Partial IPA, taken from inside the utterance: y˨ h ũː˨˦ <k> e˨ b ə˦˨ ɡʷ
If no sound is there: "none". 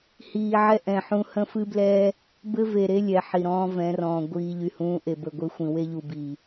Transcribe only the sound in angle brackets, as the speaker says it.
ʔ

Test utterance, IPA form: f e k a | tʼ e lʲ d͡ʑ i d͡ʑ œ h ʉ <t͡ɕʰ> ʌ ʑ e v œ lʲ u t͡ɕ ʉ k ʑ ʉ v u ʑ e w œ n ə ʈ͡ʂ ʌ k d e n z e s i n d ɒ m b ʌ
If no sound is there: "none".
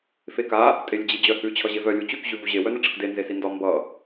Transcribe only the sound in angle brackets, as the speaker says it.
t͡ɕʰ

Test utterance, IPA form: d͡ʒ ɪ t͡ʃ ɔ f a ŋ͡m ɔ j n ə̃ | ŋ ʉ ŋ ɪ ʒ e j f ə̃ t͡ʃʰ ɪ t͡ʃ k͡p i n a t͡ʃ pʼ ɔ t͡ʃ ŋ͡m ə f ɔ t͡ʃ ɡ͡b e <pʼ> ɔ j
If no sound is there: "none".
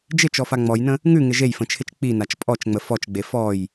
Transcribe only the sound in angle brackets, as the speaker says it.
f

